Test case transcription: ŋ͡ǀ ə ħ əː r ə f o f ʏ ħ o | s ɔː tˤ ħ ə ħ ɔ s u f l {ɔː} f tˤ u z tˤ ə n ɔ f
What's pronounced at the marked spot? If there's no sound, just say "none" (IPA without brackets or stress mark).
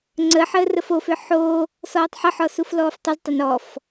ɔː